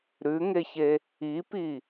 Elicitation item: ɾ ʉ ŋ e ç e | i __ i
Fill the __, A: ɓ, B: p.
B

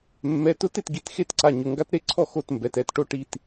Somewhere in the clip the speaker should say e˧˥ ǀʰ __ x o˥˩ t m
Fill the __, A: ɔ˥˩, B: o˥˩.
A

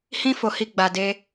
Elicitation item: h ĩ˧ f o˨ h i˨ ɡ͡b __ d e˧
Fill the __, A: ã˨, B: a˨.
B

